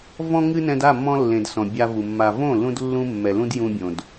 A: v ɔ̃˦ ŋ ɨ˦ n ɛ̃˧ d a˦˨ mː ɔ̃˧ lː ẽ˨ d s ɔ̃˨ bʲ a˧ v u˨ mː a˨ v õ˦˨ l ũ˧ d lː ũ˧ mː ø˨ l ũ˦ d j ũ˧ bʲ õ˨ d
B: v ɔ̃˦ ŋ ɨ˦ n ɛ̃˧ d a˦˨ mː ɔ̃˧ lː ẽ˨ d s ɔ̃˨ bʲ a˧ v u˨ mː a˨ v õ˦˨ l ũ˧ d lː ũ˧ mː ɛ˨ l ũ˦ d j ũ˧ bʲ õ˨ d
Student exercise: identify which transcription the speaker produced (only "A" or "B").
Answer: B